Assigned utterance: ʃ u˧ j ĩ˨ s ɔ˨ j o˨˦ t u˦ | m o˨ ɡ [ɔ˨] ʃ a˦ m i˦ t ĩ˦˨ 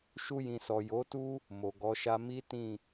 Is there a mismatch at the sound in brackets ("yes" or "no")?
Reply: yes